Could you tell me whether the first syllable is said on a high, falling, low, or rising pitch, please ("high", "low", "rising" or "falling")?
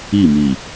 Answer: falling